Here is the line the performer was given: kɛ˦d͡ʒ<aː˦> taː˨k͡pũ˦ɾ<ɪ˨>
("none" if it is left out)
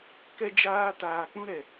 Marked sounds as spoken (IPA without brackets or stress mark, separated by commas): aː˦, ɛ˨